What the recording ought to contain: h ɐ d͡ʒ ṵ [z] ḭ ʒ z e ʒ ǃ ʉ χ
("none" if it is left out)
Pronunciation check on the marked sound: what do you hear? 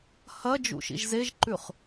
ʃ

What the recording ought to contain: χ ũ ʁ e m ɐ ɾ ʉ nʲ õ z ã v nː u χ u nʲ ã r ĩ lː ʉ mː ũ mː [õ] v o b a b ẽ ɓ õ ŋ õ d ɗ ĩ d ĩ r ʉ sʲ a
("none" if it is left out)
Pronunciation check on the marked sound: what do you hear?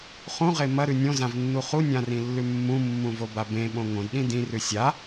ũ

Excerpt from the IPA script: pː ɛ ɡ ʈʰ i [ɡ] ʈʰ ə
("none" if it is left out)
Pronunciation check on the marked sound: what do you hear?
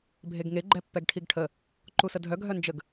ɡ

